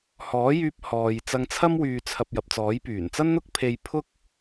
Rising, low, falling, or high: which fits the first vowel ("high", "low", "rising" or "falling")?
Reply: rising